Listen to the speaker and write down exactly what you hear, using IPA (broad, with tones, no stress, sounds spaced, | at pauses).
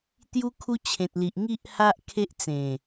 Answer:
t̪ j u˦ kʰ u˦ t͡ɕʰ ẽ˨ t̚ l i˨ ʔ ŋ i˦ ʔ h a˦ ʔ kʰ e˦ ʔ t͡s ẽ˨˩